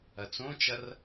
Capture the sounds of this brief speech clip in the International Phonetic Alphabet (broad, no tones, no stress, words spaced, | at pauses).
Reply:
ɐt͡sõt͡ʃɐr